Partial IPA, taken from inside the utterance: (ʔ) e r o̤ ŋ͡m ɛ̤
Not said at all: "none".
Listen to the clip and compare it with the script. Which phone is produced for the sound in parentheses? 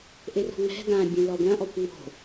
ʔ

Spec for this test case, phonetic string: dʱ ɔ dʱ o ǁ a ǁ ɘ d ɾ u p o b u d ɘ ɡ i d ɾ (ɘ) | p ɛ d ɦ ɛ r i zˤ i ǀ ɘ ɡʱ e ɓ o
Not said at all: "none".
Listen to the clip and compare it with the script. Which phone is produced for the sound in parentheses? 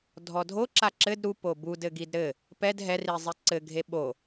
ɘ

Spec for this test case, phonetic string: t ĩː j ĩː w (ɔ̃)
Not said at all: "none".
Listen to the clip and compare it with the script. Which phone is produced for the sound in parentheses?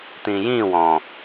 ɔ̃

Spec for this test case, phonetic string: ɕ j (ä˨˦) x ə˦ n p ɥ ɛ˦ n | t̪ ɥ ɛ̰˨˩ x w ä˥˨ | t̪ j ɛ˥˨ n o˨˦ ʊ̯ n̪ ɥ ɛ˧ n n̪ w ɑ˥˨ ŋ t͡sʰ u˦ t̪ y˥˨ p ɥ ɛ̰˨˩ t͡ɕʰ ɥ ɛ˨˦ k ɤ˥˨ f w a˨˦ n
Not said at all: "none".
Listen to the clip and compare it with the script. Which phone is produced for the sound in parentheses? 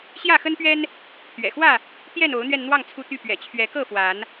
ä˥˨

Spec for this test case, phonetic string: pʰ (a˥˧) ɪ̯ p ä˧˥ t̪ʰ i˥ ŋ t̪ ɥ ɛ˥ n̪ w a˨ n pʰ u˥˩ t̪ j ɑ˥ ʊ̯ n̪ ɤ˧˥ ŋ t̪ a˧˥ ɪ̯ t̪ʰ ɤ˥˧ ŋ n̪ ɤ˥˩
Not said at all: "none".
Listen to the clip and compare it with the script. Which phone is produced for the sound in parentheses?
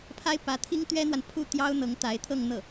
a˥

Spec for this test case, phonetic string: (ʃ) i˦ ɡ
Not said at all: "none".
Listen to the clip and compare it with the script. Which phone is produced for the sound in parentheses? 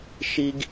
ʃ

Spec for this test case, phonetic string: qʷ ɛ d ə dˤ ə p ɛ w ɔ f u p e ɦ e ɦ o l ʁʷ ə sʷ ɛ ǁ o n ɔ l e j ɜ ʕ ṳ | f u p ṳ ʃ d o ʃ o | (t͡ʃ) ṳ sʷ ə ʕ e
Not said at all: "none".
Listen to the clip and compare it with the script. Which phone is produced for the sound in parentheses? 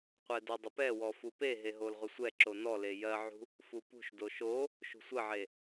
ʃ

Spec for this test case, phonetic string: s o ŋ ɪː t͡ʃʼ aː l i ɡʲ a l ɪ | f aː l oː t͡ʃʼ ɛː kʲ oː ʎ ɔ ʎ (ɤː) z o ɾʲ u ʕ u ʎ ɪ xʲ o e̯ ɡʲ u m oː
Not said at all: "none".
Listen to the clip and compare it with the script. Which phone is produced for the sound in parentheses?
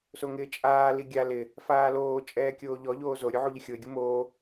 oː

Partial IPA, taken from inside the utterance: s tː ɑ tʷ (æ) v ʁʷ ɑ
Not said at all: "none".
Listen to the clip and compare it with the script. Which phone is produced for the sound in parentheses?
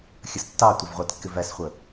ə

